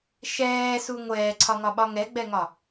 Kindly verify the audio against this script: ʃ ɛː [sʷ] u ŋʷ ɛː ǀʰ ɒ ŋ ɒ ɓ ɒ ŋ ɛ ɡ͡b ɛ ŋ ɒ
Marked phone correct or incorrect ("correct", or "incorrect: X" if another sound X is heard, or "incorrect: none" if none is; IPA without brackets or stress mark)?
incorrect: s